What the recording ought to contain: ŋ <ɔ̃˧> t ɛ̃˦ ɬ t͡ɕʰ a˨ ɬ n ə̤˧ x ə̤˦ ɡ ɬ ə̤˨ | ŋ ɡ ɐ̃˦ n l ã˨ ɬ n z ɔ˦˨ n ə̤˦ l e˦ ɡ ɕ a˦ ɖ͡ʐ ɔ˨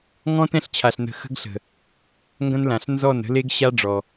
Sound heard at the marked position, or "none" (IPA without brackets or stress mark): ɔ̃˦